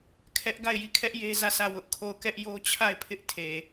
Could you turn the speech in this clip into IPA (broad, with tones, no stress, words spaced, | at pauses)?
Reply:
kʰɛ˦ʔ ɡa˦˨ɪ̯ji˦˨kʰɛ˦ʔ je˦zä˦˨sʰä˦˨ wʊ˦ʔkʰo˦˨ʊ̯ kɛ˦ʔjo˦t͡ɕʰa˦˨ɪ̯pʰɪ˦ʔ tʰe˨